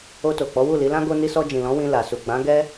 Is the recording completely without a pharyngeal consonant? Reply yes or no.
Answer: yes